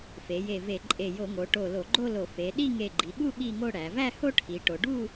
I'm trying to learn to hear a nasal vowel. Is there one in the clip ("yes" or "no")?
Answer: no